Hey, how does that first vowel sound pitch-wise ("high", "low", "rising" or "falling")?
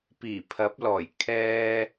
low